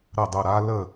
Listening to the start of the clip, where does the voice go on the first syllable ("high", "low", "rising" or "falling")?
falling